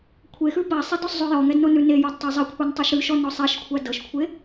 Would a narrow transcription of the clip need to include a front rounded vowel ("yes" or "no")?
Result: no